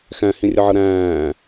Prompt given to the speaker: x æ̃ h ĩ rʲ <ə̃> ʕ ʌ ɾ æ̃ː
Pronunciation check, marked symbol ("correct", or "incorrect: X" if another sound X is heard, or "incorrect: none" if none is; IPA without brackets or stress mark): incorrect: ə